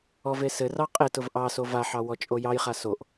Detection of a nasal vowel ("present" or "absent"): absent